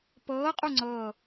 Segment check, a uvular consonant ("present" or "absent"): present